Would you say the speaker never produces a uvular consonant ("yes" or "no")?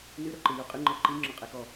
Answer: no